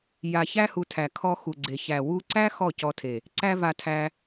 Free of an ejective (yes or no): yes